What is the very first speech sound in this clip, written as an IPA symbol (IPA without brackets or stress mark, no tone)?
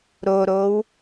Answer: ɾ